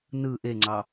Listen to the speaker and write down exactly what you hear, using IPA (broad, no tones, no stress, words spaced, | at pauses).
nɯ ʔeŋ͡ǀɑ